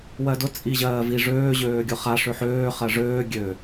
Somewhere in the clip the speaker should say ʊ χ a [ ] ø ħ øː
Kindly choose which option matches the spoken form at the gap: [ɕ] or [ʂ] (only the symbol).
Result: ʂ